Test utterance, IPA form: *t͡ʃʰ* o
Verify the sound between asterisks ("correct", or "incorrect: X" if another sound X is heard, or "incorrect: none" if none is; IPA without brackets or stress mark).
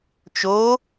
incorrect: t͡ʃ